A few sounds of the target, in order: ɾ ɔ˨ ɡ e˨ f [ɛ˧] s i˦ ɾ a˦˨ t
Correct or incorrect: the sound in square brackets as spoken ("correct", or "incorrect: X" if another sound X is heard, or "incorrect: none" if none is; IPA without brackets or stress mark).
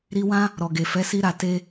incorrect: ɛ˨˦